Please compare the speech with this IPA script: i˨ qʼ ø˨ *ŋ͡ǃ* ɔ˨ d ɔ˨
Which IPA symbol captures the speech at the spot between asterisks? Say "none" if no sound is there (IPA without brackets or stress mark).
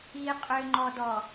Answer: ŋ͡ǃ